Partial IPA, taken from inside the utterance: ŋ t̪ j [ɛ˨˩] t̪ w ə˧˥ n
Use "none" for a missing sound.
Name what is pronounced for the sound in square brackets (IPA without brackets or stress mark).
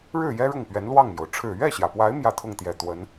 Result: ɛ˨˩